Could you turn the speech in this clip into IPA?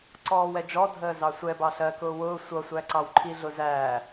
ǀ ɔː w ɛ d͡ʒ ɔ dʱ əː z ɑ sʷ ɛ b ɑ ɬ ɜ k ʊː w ʊː sʷ ʌ sʷ æ ǀ ɑ w ǃʰ i ɮ ʊ z æː

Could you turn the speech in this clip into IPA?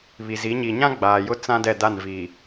β i˨ z i˨˦ ɲ i˨ ɲ ã˦ ɡ͡b aː˨ j ʊ˦ t͡s ã˦ d ɛ˦˨ d a˦˨ n v iː˨

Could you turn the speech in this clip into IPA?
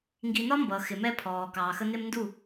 ŋ ɡ i˨ n ɒ˦ m b ʌː˨ x ɪ˨ m ɛ˦ pʰ ɔː˨ k ɑː˨ x ə˦ n ɪ˦ m n d u˦˨

